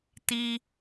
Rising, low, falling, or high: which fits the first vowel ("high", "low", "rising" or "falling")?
high